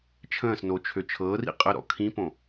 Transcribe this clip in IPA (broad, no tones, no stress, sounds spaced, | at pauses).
t͡ʃʰ ə̃ː s n o t͡ʃʰ ø t͡ʃʰ ɤː r ḭ qʼ ə ɾ ɔ̰ kʰ ĩ p õ